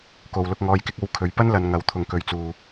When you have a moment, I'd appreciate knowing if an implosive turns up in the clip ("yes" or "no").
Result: no